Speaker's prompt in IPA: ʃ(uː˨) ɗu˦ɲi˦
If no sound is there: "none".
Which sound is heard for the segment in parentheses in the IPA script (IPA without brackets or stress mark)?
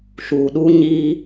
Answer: uː˨